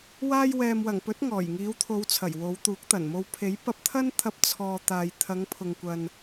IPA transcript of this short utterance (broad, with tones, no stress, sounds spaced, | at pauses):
w aː˧ j w ɛː˨ m w ɐ˨˩ ŋ p ɵ˨˥ t̚ ŋ ɔː˨˩ j ŋ iː˨˧ w t̪ʰ o˨˧ w t͡sʰ ɐ˨˩ j w o˨˧ w t̪ uː˨˥ k̚ t̪ ɐ˨˩ n m o˧ w pʰ e˨˥ j p ɐ˧ p̚ t̪ʰ ɐ˥ n t̪ʰ ɐ˧ p̚ t͡sʰ ɔː˧ t̪ aː˨ j t̪ʰ ɐ˨˧ ŋ pʰ ʊ˨ ŋ kʷ ɐ˨ n